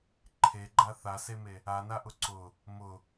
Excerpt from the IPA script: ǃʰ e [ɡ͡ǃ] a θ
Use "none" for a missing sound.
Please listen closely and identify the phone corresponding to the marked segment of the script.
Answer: ɡ͡ǃ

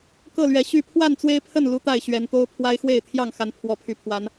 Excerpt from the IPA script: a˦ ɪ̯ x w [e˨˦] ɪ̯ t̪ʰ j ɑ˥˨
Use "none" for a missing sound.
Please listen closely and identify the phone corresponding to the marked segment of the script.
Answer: e˥˨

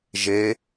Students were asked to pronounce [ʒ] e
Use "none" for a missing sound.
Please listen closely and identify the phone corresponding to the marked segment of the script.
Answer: ʒ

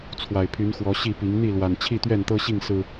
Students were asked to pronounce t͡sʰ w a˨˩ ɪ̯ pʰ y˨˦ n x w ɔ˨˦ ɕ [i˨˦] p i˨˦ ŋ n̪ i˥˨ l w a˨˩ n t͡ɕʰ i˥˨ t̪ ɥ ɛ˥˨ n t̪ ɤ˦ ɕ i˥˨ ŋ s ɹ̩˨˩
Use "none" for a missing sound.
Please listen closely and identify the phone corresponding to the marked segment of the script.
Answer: i˥˨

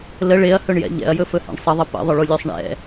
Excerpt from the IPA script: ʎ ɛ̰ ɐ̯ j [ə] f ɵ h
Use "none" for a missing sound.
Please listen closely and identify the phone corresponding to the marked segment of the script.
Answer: ɵ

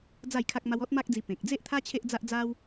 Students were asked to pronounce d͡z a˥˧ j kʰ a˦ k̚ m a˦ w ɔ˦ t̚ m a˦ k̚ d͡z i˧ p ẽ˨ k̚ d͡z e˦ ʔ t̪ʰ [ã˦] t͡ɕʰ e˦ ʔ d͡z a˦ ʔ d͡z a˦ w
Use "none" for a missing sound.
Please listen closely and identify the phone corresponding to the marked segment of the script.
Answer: a˦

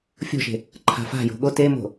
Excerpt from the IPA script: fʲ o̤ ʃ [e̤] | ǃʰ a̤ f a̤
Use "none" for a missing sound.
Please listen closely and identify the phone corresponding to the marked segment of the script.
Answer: e̤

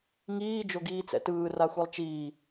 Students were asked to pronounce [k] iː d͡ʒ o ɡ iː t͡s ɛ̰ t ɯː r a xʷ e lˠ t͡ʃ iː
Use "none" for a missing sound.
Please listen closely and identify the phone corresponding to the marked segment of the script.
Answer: ŋ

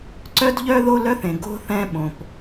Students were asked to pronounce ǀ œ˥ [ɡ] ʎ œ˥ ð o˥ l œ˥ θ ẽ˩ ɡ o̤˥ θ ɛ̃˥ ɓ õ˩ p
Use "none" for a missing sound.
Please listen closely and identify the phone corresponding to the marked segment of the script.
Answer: d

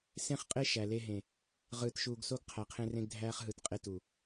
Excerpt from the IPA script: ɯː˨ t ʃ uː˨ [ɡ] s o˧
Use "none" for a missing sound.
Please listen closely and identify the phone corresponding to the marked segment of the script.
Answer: ɡ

